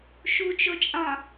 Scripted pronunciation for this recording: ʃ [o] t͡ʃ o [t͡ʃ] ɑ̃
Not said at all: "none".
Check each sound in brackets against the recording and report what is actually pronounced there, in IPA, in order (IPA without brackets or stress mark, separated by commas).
u, t͡ʃʼ